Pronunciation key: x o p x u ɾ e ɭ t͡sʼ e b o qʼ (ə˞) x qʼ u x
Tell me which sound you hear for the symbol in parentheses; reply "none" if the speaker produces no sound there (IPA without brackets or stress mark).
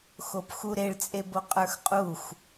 ə˞